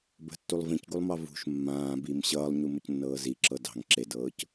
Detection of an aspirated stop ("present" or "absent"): absent